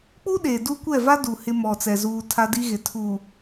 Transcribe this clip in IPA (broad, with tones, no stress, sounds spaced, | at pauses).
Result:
k͡p u˦ ɗ e˨ d u˦ kʷ ɛ˦˨ v a˦ d u˨ h ɪ˦ m ɔ˨ t͡s ɛ˨ z uː˨ tʰ a˦ d i˦ ɣ ɪ˨ tʰ u˨